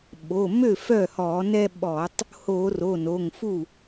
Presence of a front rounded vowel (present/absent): present